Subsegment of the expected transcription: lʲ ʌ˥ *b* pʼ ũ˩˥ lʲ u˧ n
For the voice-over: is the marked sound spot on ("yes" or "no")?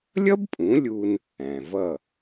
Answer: yes